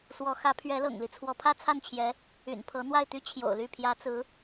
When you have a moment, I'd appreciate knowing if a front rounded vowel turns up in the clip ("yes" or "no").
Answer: yes